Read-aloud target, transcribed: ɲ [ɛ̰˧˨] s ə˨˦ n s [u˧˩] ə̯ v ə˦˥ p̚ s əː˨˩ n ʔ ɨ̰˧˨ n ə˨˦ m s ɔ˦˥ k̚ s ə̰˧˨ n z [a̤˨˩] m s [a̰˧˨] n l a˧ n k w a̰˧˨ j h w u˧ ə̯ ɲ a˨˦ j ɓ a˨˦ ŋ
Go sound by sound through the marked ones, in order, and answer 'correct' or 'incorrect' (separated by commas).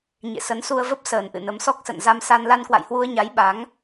incorrect, incorrect, incorrect, incorrect